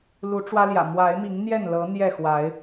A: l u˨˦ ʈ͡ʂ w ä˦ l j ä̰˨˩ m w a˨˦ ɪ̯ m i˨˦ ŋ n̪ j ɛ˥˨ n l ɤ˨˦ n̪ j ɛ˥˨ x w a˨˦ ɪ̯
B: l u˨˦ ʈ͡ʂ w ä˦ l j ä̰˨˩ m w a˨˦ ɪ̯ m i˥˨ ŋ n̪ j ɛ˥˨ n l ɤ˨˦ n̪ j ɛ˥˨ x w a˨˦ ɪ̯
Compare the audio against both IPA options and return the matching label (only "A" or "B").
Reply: A